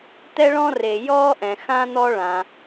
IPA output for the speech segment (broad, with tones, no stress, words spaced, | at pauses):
t̪ɛ˥ɭɔ̃˥re˩ jɔː˥ʔɛ̃˩xã˥ n̪ɔ˥ɭã˩